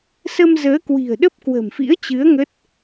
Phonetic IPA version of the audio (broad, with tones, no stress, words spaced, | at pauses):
sə˧mzəː˨˦kwi̤˨˩ə̯ ɗə˦˥p̚ kwə̤˨˩mfḭ˧˥ə̯t͡ɕɨ˨˦ə̯ ŋə˦˥t̚